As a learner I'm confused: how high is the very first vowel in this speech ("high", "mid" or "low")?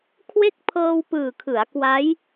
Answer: mid